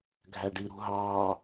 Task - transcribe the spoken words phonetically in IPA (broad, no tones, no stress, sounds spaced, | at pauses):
ɡʱ æ ɖ i ɾ ṳ ɦ ɑː